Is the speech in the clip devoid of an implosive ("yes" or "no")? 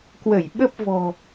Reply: no